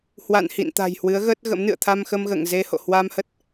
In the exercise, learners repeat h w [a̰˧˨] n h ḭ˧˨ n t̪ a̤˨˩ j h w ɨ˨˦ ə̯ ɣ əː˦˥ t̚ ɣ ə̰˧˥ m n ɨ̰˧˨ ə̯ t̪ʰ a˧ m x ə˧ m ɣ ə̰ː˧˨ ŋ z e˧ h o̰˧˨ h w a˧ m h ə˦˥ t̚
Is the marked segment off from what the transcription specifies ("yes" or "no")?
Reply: no